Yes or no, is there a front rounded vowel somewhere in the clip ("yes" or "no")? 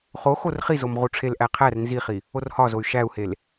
yes